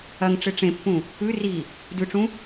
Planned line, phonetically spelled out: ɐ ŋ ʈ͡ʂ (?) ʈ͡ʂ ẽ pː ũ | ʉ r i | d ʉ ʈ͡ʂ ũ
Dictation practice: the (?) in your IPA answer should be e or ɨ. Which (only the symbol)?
ɨ